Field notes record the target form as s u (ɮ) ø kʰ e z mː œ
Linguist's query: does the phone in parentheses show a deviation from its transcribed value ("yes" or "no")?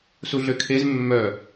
no